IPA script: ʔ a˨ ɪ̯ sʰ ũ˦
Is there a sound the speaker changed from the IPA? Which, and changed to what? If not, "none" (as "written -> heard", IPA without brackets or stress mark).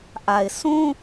none